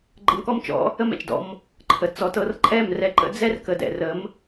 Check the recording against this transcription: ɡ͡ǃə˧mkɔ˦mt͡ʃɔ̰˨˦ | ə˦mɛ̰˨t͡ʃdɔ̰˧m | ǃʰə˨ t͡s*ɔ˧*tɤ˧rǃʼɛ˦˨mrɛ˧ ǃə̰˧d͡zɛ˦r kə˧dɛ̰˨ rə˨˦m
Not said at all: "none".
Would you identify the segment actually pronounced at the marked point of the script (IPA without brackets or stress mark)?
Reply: ɔ˨